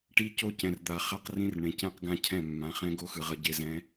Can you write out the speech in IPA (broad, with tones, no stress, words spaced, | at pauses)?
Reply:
ʈi˦ co˦cɛ̃˨rd̪a˨χa˦q rĩ˦rɳẽ˨ cɛ̃˦qɡã˦cʰɛ̃˦˨ mːã˨˦χɛ̃˦ ɡo˦xɯ˨ʁʌ˨ ɟe˨zɛ̃˨˦